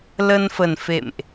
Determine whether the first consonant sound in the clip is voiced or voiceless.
voiced